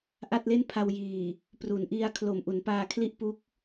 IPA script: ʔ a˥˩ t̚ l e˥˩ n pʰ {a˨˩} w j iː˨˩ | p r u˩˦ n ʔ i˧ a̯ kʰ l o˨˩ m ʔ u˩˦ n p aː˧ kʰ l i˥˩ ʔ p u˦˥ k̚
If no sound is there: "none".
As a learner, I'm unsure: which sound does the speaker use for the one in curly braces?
a˧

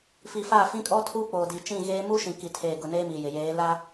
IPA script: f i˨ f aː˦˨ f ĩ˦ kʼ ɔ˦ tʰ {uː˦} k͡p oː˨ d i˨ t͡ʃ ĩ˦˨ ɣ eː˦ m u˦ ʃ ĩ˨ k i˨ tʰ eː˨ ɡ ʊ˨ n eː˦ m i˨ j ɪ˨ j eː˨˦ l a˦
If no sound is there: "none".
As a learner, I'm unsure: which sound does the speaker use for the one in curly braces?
uː˦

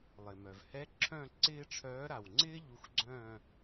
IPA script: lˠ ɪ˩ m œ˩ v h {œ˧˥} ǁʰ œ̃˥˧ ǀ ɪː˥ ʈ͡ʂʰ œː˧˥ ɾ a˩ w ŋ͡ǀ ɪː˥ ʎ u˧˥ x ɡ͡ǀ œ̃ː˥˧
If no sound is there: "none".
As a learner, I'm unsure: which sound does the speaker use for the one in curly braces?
ɛ˧˥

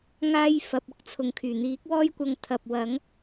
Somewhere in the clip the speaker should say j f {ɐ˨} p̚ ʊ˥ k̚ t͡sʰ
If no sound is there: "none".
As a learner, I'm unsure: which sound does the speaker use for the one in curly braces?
ɐ˧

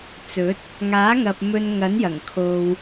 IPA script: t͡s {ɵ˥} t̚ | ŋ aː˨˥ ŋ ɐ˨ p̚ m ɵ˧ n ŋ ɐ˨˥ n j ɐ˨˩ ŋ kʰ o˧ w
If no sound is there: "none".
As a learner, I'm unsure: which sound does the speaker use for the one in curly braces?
ɵ˨˥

